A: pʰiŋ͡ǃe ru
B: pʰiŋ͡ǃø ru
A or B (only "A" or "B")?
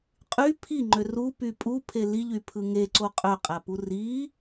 B